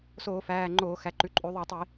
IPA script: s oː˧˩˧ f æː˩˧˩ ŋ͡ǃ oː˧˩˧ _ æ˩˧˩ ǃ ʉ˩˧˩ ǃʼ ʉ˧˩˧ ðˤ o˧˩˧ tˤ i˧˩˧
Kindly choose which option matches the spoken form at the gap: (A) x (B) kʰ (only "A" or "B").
A